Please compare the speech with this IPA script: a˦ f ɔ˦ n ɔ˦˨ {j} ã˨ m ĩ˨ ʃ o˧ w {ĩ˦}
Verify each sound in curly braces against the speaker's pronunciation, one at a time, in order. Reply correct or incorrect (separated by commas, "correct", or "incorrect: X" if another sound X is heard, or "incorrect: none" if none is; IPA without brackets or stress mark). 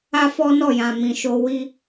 correct, incorrect: i˦